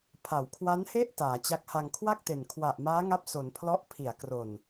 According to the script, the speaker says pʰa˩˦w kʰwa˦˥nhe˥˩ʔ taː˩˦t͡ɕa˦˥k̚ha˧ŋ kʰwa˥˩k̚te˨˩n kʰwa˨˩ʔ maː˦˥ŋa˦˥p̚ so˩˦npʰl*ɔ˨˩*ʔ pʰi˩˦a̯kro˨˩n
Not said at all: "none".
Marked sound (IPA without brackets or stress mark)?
ɔ˦˥